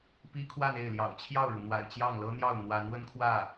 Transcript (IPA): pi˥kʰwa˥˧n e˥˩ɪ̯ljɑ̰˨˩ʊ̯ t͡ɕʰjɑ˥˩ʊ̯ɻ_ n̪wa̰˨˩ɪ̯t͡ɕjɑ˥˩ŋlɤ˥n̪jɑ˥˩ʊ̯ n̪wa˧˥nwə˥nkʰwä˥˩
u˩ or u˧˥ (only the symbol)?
u˩